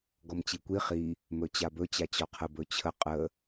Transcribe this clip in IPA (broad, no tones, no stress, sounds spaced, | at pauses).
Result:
ɡ ɔ m t͡ɕ i kʷ i χ i | m ɵ t͡ɕ a b ɵ t͡ɕ a t͡ɕ ɔ qʰ ə b ɵ t͡ɕʰ ə qʼ ə